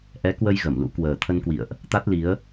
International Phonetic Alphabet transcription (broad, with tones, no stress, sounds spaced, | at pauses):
ʔ ɛ˨˦ k w ə˧ j ɣ ə˧˩ m l ṵ˧˥ k w əː˨˩ t̪ʰ ə˧ n k w ḭ˧˨ ə̯ ʔ | t̪ a˦˥ t̚ l i˨˦ ə̯